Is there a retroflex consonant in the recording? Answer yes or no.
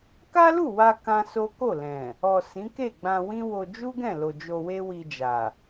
no